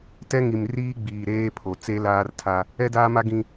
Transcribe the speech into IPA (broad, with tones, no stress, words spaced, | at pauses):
tɛ˦ŋi˨m riː˦ɡ͡biː˨ɾeː˦pʰo˨ t͡se˦laː˦rtʰa˦ | ɛ˦daː˦ma˦ ɡĩ˦